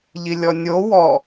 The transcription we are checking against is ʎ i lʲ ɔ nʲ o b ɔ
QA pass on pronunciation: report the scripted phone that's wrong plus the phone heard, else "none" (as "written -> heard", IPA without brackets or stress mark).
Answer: b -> w